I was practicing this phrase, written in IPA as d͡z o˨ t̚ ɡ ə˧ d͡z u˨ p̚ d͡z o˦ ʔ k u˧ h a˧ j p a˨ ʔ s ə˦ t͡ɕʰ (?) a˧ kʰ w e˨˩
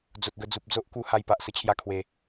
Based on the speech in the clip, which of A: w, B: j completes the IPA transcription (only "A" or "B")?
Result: B